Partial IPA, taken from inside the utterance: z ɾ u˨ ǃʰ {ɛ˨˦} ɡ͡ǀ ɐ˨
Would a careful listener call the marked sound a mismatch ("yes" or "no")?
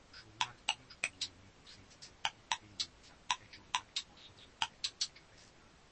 no